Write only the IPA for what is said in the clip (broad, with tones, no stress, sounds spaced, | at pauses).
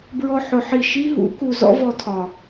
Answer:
b ɹ ɔ˦ ħ ʊ˧ ħ i˦˨ ʃ i˦ ɦ ṵ˨˦ k u˧ z ɔ̰˦ v ɔ˧ tʰ ɒ˨